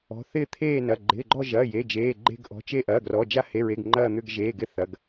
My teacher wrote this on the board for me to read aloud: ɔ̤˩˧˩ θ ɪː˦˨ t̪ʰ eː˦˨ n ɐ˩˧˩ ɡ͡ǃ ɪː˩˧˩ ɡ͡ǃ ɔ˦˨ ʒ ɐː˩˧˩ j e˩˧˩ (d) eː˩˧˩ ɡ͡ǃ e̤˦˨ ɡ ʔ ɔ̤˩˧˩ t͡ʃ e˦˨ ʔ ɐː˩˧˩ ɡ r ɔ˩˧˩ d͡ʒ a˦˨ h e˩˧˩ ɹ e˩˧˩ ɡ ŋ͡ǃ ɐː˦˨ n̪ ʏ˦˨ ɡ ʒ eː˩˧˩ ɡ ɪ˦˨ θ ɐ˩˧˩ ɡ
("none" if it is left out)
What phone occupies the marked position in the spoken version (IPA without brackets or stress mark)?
d͡ʒ